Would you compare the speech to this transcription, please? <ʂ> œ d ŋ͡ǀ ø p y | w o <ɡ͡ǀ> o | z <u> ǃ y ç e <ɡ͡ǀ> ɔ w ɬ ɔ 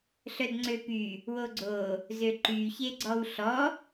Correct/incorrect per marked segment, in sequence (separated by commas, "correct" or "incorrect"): incorrect, correct, incorrect, correct